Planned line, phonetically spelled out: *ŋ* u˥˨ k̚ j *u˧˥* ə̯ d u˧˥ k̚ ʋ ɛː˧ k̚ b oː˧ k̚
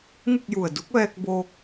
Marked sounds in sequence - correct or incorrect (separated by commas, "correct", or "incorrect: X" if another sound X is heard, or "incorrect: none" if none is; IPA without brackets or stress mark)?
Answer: correct, incorrect: u˧˩